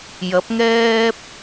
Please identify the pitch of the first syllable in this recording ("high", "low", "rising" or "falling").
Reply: rising